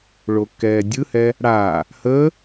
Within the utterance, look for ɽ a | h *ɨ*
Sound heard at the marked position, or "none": ə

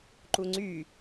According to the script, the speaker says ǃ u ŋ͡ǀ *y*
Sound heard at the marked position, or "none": y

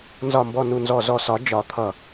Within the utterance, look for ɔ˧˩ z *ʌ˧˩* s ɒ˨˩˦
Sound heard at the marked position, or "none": ɔ˧˩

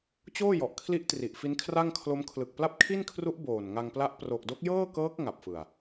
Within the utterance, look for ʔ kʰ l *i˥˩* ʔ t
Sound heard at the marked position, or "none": i˦˥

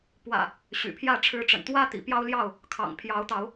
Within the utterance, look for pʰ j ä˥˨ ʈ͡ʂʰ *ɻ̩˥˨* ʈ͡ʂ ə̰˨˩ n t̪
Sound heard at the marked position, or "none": ɻ̩˨˦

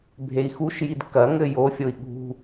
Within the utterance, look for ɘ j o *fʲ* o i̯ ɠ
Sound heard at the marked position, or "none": fʲ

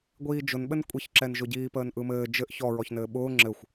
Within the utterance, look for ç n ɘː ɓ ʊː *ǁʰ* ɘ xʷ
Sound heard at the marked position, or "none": ŋ͡ǁ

